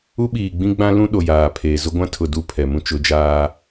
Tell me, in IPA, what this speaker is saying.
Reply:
u˦ɓiː˨ ɡ͡bĩ˦ɡ͡bã˦lũ˦ ɗo˨jaː˨pʰeː˨ zʊ˦ɡʷã˦ tʰʊ˨ du˦˨ pʰɛ˨mũ˦ t͡ʃʊ˨˦d͡ʒaː˦

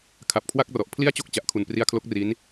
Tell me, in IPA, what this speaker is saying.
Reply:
kʰa˨˩p̚kʰwa˥˩k̚rɔ˨˩ʔ pʰli˥˩a̯t͡ɕo˥˩k̚ t͡ɕa˨˩ʔkʰu˨˩npri˦˥a̯kʰlo˦˥k̚ ri˦˥n

